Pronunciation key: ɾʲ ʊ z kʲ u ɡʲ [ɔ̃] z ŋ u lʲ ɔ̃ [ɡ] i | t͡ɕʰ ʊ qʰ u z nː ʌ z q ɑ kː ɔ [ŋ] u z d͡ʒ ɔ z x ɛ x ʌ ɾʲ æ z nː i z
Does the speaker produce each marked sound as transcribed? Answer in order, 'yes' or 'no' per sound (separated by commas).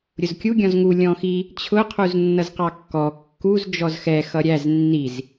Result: yes, no, no